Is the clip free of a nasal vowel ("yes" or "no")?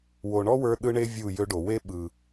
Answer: yes